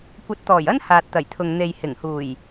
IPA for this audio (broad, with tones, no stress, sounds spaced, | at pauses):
kʷ ɐ˨˥ t̚ t̪ ɔː˨˩ j ɐ˥ n h aː˨ t̚ t̪ ɐ˨˩ j t̪ʰ ʊ˨ ŋ n̪ e˨ j h ɪ˨˩ ŋ h uː˨˩ j